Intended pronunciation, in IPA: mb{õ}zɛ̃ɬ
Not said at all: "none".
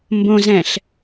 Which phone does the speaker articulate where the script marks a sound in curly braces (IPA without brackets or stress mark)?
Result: õ